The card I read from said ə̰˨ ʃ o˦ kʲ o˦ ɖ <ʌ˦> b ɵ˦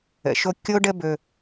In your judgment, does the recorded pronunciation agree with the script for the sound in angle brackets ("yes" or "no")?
no